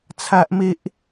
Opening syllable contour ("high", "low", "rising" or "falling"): high